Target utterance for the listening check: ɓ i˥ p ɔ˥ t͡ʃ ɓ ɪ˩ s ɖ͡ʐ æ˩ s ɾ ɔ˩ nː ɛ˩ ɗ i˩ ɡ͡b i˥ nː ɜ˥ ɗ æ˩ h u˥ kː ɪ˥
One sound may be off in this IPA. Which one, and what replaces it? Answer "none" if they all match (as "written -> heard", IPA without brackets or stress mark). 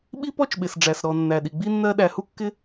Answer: ɛ˩ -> æ˩